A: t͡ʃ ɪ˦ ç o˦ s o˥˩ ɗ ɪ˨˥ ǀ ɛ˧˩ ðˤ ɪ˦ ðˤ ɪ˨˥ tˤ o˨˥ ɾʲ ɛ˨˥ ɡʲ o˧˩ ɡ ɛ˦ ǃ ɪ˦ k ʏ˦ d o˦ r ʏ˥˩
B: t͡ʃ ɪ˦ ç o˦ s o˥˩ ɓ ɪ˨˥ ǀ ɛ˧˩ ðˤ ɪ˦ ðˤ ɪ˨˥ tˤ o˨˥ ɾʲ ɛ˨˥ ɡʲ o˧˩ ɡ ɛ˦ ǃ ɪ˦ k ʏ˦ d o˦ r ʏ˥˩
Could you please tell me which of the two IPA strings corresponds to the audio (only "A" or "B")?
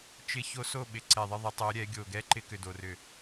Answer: B